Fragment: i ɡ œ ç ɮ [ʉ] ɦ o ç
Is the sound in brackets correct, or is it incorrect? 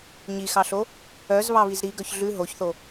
correct